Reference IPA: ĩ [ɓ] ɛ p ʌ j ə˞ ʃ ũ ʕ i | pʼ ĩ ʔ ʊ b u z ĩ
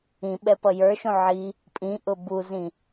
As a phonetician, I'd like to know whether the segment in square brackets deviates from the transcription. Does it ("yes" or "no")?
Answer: no